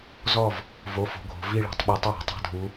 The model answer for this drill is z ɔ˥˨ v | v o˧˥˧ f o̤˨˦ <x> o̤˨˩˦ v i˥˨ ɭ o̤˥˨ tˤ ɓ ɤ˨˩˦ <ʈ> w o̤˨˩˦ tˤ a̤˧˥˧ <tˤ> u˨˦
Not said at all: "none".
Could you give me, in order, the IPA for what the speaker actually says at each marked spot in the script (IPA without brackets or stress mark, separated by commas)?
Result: ɡʱ, tˤ, dʱ